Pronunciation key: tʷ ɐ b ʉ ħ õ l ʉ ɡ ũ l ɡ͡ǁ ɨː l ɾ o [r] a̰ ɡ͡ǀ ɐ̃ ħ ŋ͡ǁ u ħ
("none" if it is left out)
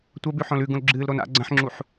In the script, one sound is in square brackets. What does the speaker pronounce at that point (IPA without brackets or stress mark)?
n